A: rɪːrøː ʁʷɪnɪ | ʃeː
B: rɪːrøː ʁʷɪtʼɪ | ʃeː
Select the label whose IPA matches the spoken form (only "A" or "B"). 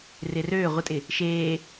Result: B